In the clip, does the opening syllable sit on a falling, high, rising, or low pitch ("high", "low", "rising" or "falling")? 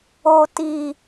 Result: low